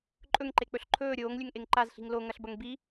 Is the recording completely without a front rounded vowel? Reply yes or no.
yes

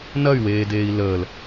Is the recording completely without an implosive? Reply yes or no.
yes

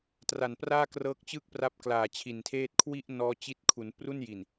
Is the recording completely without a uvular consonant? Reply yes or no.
yes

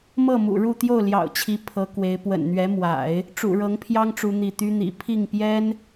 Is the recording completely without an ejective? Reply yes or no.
yes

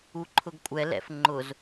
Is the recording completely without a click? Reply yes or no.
no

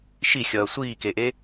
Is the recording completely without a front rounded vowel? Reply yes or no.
yes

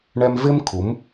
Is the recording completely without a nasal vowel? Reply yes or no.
yes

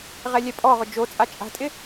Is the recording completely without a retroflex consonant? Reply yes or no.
yes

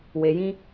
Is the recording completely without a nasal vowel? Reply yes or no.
no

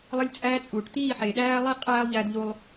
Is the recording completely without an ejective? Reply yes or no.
no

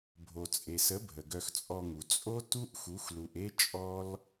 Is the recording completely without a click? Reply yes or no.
yes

